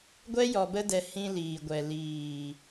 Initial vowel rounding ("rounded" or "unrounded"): unrounded